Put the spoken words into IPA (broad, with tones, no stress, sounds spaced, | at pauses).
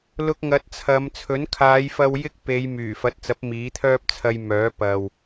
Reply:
l ʊ˧ k̚ ŋ ɐ˨˥ t̚ t͡sʰ ɐ˨˧ m t͡sʰ ɵ˨˥ n kʰ aː˨˧ j f ɐ˧ w j ɪ˥ k̚ p e˨˧ j m yː˨˩ f ɐ˨˥ t̚ t͡s ɐ˨˥ p̚ m iː˨˥ t̪ʰ œː˥ p̚ t͡sʰ ɐ˧ j m œː˨˥ p ɐ˨ w